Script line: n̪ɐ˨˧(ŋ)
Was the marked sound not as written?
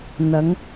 no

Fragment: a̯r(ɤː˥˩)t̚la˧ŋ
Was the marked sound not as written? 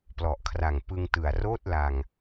yes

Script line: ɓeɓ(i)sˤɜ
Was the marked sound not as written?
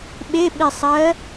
no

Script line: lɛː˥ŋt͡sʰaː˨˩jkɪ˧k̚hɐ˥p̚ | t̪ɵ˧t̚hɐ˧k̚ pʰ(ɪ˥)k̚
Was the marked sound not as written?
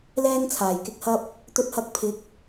yes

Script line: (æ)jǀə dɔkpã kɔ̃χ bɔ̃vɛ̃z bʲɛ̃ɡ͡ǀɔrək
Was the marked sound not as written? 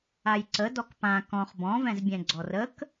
yes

